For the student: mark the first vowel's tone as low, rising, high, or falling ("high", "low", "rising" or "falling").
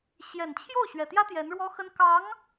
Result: low